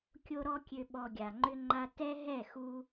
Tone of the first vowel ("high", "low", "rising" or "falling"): high